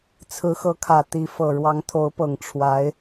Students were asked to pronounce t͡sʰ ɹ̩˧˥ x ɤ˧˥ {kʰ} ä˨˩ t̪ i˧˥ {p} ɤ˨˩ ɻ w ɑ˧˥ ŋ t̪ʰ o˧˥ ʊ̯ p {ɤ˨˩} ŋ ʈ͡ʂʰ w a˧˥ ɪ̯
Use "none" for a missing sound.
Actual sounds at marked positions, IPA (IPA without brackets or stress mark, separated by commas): kʰ, f, ɤ˨˩